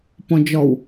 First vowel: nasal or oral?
nasal